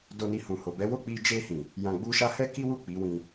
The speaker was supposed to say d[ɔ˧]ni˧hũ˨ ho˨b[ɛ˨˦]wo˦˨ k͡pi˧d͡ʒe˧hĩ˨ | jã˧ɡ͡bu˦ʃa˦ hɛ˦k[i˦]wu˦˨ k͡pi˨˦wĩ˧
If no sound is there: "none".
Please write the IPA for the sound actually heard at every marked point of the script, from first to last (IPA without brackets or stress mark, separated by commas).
o˧, ɛ˨˦, i˦